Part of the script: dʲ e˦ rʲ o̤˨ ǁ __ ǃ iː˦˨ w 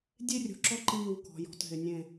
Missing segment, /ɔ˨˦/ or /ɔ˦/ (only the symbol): ɔ˦